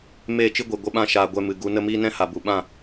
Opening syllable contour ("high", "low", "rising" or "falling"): falling